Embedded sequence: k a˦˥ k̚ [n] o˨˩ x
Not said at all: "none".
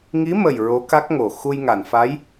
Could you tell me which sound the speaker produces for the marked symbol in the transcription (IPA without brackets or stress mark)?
ŋ